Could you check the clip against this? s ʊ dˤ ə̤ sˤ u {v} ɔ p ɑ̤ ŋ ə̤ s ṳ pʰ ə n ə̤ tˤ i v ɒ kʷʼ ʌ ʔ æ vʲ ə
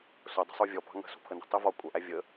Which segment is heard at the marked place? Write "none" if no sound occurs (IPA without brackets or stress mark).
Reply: vʲ